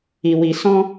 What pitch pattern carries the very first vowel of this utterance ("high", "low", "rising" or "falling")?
low